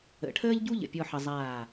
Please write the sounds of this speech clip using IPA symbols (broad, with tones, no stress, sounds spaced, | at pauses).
ə̰˩˧ ʈʰ əː˥ ʎ ɟ u˥ ʎ ə̰˧˩ pʲ ɔ˥˧ ħ ʌ˧ zˤ aː˧˩